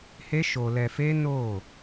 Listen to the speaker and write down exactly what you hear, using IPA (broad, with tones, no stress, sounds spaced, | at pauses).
h e˦ ʃ o˧ l ɛ˧ f e˦ n o˦˨